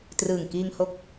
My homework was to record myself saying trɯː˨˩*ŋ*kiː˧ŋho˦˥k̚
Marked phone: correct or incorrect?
correct